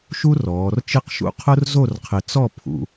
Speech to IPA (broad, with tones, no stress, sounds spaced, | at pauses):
ʃ u˥ r ɔː˩˧ r t͡ʃ ɪ˥˧ q ʃ ṵ˥ qʰ ʊ˥ r z o˥˧ r qʰ ɪ˧ t͡s ɔ˥˧ pʰ ṵ˧